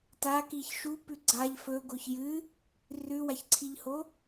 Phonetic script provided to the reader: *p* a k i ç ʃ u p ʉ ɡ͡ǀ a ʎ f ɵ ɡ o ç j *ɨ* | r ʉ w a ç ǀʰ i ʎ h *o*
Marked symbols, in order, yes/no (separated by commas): no, yes, yes